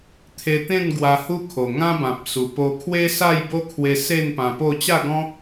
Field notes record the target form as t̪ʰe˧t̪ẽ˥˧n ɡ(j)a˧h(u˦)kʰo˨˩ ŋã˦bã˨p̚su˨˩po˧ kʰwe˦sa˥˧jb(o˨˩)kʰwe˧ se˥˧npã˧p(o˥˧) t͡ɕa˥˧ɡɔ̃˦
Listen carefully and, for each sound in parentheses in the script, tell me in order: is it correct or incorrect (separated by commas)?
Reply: incorrect, correct, incorrect, correct